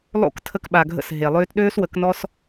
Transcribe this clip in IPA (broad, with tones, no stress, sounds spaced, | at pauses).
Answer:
lˠ o̰˦˨ k tʰ ə˧ k ɓ a˨ ɡʱ ə̰˧ s ɦ e˨ lˠ øː˦ t ɗ øː˦ s w ə˨˦ k n ɔ˦ s